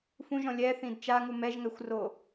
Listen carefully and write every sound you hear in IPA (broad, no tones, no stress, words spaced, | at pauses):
fũʒɔ̃ lʲɛθĩd t͡ʃaŋu mɛʒŋɛxʷro